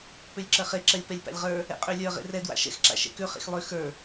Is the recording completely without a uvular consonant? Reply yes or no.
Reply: no